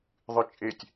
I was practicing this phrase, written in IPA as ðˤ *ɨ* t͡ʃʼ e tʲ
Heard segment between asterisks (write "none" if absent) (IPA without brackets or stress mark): ɨ